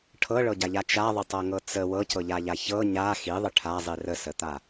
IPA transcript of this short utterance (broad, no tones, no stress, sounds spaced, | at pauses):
ʈʰ ɤ ɭ ɤ ɟ a ʎ a t͡ʃ a ðˤ ə tˤ ɤ ŋ ɤ t͡s ə w ɤ c ɤ ʎ a ʎ a ç ɤ ɲ a x i ðˤ ə ʈʰ a zˤ i r ə s ə t̪ a